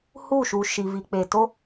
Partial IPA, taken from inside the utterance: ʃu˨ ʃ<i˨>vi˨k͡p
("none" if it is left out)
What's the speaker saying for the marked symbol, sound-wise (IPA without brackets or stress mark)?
i˨